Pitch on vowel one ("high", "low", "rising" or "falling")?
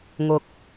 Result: low